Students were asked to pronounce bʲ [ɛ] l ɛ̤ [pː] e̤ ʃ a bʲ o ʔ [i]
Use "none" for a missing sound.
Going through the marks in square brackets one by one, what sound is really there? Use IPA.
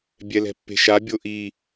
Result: ɛ, pː, i

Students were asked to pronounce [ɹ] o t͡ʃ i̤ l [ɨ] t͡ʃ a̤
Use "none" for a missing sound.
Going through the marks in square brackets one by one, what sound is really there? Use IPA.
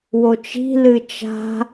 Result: w, ɨ

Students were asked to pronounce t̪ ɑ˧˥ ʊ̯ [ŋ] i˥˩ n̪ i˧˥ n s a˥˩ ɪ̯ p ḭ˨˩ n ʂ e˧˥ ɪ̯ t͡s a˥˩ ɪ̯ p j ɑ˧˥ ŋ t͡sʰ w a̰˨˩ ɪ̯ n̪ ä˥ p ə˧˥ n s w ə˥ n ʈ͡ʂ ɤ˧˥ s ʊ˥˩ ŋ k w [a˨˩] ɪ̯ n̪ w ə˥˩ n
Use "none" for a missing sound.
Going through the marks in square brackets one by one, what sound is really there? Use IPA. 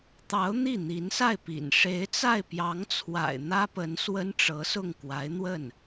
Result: n̪, a˧˥

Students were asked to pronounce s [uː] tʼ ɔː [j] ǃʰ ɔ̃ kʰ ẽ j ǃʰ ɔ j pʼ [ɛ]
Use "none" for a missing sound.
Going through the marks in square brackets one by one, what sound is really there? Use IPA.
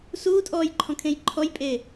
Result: uː, j, e

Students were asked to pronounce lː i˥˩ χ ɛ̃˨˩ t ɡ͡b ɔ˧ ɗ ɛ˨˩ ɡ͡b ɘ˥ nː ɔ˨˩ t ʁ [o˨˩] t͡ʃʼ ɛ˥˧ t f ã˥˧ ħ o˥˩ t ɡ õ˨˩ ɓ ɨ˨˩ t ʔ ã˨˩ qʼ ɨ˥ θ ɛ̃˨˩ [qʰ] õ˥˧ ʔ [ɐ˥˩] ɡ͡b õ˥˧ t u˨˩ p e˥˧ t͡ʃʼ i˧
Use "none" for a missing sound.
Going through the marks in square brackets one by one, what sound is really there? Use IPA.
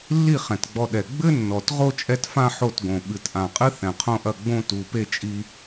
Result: o˥˧, qʰ, ɐ˥˩

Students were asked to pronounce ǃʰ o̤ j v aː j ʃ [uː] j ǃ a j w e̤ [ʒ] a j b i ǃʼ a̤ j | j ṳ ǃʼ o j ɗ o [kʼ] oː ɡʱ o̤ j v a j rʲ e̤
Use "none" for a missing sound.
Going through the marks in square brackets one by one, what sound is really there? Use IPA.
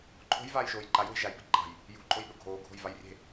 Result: oː, ʒ, ɡʱ

